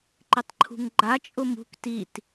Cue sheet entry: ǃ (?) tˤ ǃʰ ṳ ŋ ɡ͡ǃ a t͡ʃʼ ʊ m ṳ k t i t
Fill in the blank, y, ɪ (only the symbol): ɪ